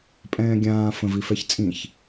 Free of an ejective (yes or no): no